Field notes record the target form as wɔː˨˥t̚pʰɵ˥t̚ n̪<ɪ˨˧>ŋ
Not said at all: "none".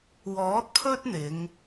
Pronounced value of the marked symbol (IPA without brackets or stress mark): ɪ˨˧